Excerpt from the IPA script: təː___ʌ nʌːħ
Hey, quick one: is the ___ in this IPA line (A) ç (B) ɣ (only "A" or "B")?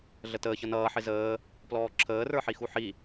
A